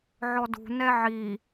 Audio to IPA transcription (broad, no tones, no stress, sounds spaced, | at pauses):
ʕ ɔ d ṳ n ɛ ʕ i